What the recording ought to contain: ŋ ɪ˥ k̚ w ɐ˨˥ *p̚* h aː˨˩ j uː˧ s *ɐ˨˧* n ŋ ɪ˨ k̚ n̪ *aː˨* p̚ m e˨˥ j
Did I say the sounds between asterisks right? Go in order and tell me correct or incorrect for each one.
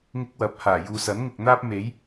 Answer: correct, incorrect: ɐ˨˥, incorrect: aː˥

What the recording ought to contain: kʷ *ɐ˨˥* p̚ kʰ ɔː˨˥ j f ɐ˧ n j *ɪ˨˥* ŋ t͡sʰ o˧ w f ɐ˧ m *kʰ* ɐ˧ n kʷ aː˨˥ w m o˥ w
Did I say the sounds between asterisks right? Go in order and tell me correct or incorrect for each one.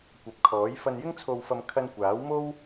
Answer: correct, incorrect: ɪ˥, correct

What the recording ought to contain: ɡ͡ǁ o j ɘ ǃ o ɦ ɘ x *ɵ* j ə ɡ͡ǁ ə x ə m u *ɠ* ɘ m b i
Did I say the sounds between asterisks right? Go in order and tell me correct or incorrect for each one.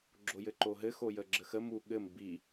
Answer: incorrect: o, correct

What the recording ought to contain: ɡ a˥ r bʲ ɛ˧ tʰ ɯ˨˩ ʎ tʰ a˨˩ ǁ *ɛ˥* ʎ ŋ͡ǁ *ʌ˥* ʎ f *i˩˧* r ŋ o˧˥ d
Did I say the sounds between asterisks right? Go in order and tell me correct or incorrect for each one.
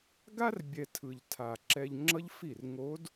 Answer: incorrect: ɛ˧, correct, incorrect: i˥˩

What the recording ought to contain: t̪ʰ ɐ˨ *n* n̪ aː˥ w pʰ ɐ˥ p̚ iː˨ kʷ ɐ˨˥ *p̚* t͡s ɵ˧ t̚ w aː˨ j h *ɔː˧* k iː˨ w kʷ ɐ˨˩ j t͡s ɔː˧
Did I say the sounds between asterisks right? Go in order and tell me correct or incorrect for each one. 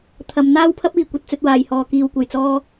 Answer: incorrect: m, incorrect: t̚, incorrect: ɔː˨

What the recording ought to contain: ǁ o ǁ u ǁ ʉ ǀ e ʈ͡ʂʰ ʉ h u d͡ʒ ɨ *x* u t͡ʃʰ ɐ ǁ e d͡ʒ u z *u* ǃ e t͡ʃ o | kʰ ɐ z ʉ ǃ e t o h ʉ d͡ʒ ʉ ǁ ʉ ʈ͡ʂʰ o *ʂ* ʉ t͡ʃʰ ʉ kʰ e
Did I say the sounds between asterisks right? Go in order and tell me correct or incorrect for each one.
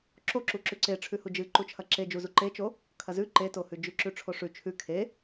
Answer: incorrect: ǃ, correct, correct

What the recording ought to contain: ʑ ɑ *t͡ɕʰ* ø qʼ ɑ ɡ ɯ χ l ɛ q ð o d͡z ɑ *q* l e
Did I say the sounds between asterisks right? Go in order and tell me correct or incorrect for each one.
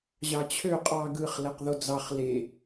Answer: correct, incorrect: χ

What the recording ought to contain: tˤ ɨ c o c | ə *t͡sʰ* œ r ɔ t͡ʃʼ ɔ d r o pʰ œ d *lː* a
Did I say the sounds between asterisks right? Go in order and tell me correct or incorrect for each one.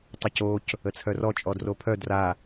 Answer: correct, incorrect: r

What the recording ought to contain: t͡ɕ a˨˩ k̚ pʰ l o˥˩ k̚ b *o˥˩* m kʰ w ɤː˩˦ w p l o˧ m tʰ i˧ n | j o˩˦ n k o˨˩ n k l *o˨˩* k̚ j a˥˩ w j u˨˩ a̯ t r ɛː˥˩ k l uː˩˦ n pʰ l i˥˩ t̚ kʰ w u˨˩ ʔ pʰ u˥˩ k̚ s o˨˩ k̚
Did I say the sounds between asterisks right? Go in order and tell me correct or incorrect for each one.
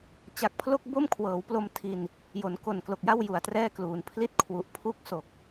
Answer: correct, correct

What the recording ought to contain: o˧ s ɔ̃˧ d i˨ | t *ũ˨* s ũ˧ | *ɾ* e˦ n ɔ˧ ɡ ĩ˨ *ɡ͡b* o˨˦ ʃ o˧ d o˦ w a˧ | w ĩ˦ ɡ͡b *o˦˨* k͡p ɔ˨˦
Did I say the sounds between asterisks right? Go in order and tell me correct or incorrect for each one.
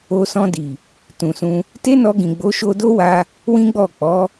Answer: correct, incorrect: t, correct, incorrect: ɔ˦˨

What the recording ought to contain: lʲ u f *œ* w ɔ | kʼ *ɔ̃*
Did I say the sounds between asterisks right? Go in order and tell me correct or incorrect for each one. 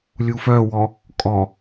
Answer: correct, incorrect: ɔ

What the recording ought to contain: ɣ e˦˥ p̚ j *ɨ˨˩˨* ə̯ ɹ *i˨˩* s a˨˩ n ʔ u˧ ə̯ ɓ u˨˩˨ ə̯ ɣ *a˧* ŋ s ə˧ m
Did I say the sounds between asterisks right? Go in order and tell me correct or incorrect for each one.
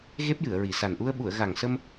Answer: correct, correct, incorrect: a˨˩

